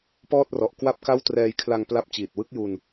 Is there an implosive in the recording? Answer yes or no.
no